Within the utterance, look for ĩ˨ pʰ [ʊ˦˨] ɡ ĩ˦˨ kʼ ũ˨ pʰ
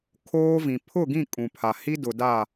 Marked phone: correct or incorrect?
correct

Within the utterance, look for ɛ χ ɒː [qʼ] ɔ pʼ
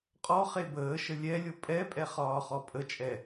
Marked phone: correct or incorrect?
incorrect: χ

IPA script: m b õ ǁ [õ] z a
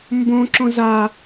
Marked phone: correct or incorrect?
correct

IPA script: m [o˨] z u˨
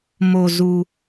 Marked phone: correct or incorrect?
correct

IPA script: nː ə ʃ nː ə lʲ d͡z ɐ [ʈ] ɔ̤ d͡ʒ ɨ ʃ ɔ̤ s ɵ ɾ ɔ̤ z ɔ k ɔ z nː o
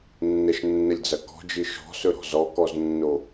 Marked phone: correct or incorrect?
incorrect: k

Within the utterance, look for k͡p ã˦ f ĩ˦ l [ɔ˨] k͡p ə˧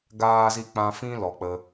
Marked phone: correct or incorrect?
correct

